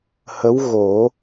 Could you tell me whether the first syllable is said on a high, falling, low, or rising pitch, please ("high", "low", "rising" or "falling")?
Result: rising